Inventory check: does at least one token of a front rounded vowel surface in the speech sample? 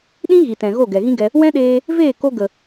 no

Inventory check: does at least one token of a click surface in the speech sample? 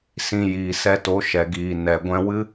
no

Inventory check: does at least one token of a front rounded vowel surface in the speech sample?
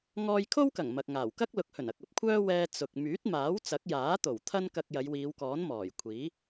yes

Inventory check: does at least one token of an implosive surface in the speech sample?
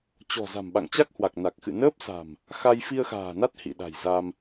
yes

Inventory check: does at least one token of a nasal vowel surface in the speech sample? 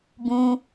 yes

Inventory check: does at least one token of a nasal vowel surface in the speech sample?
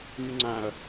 yes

